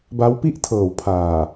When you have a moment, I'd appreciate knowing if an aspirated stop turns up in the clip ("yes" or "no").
yes